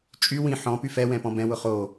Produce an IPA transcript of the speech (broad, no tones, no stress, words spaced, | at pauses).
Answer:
t͡ʃʼy wĩ ħɔ̃ pyfɛwɛ̃ pɔ̃bɛ̃wʊ χo